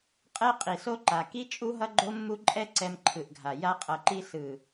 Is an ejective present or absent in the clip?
present